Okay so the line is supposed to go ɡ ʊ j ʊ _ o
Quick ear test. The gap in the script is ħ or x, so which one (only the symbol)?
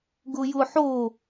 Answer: ħ